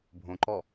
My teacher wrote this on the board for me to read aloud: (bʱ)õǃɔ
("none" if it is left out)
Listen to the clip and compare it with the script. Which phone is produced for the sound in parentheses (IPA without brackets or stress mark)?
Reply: bʱ